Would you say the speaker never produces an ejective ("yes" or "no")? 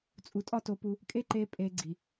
no